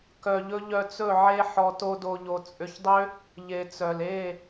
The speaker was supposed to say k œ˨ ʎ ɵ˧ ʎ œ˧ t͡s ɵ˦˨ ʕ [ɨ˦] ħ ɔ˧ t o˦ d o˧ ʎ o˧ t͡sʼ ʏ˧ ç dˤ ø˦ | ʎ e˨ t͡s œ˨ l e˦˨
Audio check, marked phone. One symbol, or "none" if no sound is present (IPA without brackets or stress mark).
e˦